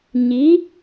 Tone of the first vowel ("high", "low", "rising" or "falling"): rising